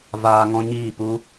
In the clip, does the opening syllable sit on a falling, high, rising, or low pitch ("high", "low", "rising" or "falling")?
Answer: high